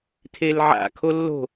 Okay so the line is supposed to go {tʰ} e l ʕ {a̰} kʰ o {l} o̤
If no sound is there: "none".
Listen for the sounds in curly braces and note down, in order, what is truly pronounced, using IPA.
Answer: tʰ, a̰, lː

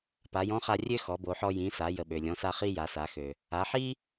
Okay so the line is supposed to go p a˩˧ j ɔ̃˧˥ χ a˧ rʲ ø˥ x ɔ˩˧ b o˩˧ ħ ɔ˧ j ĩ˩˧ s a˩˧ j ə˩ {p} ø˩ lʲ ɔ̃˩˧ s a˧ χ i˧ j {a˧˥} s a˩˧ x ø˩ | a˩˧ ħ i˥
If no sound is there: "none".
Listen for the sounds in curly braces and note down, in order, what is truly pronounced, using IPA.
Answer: ɓ, a˩˧

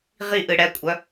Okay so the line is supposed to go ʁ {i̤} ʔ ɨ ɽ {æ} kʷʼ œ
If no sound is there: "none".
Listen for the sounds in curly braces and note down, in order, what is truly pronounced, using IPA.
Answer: i, ɛ

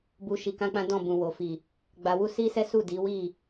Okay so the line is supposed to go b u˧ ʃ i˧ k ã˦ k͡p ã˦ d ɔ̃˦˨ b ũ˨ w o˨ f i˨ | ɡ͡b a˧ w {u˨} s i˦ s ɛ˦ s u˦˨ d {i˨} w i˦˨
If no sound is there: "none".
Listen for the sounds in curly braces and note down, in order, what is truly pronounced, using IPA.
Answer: u˦, i˨˦

